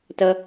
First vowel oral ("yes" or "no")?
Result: yes